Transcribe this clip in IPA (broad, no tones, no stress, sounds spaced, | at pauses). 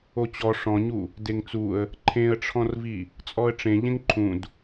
o t͡ɕ ɔ ʂ ɔ̃ ɲ u | d e ŋ t͡s u ə̯ | ǃʰ ẽ ə̯ ʈ͡ʂʰ ɔ̃ r v i | t͡sʼ ɔ ə̯ ʈ͡ʂ ẽ ʎ ẽ ŋ ǃʰ ũ d